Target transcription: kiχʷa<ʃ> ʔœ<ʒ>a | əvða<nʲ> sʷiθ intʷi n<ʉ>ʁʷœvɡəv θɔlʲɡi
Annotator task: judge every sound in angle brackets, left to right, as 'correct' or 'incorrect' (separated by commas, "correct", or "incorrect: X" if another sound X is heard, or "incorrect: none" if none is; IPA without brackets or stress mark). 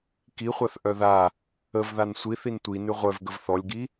incorrect: θ, incorrect: ð, incorrect: n, correct